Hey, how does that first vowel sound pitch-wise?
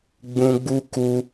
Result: high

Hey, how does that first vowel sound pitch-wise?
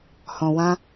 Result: low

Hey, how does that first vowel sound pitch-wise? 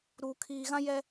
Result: low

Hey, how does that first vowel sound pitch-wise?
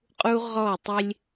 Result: high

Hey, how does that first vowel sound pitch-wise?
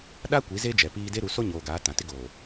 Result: high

